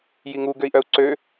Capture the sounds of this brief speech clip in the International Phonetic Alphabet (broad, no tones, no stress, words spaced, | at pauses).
jiŋu ɡøi̯ʔœu̯ǀø